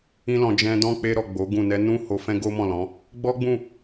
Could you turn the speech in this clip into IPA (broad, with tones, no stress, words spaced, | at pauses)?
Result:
ĩ˧lɔ̃˨ d͡ʒɛ̃˧dɔ̃˦ k͡pe˧ɾɔ˨ ɡ͡bo˨˦ɡũ˦˨ nɛ˧nũ˦ ho˧ fɛ̃˦ɡo˦mɔ̃˦˨lɔ̃˨˦ | ɡ͡bɔ˦ɡ͡bũ˦˨